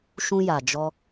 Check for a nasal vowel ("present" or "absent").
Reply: present